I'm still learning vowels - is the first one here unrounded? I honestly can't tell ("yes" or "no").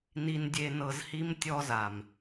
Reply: yes